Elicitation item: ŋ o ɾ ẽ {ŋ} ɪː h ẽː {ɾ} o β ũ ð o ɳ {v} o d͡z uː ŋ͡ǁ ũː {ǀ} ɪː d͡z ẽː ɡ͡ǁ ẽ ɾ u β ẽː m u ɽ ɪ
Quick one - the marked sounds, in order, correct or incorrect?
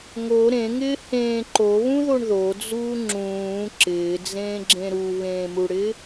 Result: correct, incorrect, incorrect, incorrect

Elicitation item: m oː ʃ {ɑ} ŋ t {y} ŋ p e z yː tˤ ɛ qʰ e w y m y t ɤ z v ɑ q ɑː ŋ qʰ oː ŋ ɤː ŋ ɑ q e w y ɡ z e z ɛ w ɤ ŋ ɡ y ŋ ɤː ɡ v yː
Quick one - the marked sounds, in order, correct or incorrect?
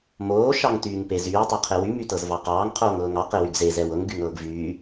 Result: correct, incorrect

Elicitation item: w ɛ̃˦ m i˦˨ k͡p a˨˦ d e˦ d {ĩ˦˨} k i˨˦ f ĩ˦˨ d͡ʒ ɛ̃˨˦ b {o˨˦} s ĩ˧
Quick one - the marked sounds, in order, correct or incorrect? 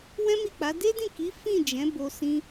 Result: correct, incorrect

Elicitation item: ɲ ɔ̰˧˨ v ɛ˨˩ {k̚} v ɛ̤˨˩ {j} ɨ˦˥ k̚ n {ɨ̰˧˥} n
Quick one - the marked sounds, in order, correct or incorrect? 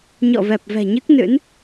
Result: incorrect, incorrect, correct

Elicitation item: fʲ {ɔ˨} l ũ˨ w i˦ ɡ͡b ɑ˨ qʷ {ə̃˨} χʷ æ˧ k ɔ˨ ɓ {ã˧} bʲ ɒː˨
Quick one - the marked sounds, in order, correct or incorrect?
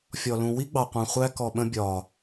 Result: correct, incorrect, incorrect

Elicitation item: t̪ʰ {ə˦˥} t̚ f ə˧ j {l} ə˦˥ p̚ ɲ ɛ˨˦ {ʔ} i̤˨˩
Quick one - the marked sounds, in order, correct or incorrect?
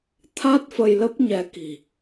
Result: incorrect, correct, incorrect

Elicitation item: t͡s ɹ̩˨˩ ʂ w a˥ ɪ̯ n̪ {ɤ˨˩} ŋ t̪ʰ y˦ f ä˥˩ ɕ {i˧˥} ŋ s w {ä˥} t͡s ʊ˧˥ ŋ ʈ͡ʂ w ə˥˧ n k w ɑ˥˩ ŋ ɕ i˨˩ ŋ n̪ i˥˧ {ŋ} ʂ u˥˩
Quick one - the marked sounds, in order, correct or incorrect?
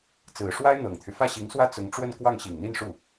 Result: correct, correct, correct, incorrect

